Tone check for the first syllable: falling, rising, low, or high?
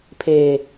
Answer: low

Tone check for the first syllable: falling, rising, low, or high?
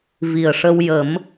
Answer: low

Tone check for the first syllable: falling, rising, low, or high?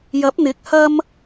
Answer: rising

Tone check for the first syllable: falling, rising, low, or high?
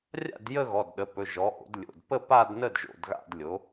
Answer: falling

